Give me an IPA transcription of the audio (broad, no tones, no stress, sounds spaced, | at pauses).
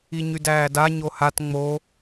i ɲ y d æː d a ɲ o h a t ŋ͡m o